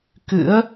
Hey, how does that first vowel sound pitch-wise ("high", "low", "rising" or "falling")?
rising